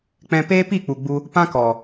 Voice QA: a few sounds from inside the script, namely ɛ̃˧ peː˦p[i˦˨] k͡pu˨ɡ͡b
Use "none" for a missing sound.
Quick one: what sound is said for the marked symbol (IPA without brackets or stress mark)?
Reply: i˦˨